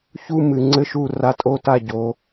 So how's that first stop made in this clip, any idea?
click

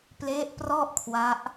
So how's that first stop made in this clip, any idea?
plain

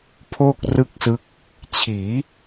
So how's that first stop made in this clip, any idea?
aspirated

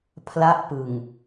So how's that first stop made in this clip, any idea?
aspirated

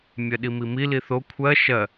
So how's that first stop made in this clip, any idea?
implosive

